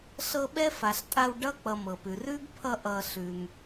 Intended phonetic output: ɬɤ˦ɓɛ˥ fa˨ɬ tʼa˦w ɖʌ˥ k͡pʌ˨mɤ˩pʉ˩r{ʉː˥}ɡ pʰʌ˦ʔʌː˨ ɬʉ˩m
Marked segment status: correct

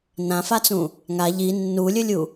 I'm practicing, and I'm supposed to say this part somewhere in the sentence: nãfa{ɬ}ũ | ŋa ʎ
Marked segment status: incorrect: t͡s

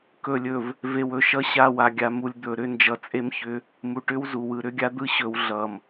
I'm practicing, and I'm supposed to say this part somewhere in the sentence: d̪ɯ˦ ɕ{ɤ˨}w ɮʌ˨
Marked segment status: incorrect: ɵ˨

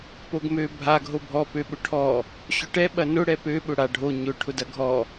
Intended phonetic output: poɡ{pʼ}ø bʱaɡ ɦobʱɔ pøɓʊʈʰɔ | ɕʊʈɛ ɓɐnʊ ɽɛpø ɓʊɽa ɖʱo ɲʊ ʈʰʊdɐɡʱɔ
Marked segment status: incorrect: m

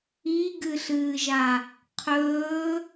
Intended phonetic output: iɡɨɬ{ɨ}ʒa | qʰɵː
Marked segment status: incorrect: ɨː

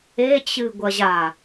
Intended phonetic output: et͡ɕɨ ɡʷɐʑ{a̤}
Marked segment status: incorrect: a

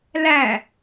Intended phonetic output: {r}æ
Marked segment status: incorrect: l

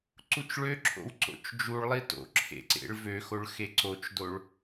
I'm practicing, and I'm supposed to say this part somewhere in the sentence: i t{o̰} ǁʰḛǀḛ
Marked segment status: correct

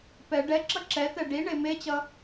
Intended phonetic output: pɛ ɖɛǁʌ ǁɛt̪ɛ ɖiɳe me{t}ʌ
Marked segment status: incorrect: t͡ɕ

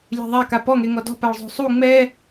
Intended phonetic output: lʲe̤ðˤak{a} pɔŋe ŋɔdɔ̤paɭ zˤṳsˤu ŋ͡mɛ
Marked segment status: correct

